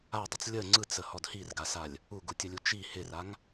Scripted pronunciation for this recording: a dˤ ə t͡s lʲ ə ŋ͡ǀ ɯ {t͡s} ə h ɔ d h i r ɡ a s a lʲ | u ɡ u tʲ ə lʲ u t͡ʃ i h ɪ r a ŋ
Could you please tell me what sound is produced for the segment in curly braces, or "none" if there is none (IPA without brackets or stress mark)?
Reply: t͡s